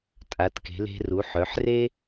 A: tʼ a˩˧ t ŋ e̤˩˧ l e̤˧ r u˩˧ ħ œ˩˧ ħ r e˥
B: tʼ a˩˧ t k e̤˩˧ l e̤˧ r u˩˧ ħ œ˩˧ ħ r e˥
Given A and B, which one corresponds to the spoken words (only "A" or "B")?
B